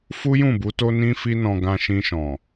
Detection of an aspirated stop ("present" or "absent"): absent